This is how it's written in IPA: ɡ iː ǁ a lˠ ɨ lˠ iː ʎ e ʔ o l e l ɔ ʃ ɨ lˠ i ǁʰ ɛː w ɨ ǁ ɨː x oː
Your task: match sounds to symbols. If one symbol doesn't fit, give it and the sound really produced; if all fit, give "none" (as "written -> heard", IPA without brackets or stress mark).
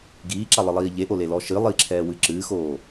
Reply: none